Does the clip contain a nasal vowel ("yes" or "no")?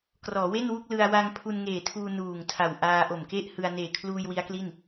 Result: no